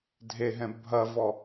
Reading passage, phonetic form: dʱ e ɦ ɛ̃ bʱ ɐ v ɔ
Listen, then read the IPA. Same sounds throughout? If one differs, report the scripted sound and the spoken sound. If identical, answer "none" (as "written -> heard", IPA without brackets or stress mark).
none